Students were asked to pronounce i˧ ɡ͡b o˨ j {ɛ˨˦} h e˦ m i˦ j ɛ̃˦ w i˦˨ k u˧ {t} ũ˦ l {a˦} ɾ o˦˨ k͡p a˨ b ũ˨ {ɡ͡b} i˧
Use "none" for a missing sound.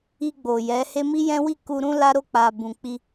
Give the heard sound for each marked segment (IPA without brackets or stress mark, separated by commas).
ɛ˨˦, ɾ, a˦, k͡p